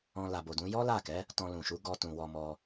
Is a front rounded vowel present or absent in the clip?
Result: absent